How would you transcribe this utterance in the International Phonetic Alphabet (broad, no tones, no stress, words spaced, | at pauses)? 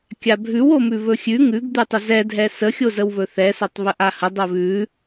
kʲabʱʉw omʉβɵxʲʉ ŋʉɡd̪ʉtˤə zɛdʱɛ səxʲozəwβɵ θɛsatˤβə ʔahə dˤoβʉ